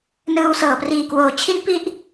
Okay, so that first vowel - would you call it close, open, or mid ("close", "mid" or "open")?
close